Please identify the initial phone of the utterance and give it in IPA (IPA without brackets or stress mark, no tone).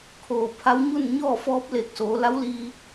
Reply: kʰ